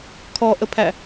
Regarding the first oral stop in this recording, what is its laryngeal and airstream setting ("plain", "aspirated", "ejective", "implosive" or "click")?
aspirated